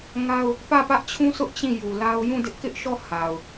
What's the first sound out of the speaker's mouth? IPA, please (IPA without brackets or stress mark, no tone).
ŋ